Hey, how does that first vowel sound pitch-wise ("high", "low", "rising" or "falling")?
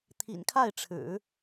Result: low